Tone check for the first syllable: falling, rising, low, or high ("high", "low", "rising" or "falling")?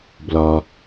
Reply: low